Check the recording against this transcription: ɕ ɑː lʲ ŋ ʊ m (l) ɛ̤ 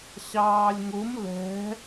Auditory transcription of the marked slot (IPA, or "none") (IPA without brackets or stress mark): l